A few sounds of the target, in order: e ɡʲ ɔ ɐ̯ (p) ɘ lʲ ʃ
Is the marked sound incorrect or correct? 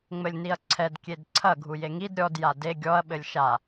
incorrect: ɓ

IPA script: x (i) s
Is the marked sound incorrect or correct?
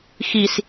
correct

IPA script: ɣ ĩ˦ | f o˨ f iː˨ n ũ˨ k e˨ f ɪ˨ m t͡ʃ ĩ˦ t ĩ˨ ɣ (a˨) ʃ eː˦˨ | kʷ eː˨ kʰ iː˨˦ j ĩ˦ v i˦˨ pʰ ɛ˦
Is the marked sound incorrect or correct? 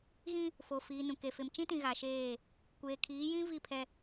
correct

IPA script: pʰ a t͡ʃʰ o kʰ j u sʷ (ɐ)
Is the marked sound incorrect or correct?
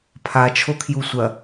correct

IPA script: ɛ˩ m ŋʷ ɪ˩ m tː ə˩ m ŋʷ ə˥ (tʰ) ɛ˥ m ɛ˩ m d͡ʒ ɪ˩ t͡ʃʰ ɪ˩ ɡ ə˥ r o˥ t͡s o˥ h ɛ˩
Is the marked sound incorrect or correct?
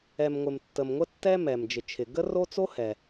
incorrect: tː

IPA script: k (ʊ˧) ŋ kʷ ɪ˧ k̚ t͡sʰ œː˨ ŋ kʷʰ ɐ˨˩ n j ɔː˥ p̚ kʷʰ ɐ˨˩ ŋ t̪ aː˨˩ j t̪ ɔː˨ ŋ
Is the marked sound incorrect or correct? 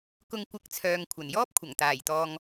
correct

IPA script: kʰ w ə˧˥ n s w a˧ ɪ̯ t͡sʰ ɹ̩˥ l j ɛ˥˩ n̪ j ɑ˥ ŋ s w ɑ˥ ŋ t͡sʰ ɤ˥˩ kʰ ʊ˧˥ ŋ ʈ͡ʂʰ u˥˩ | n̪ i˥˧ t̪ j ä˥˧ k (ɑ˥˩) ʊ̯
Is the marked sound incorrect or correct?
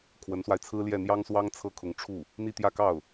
correct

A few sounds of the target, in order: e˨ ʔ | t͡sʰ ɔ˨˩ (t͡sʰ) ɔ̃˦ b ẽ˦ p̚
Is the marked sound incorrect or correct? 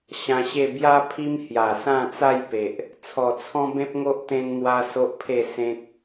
correct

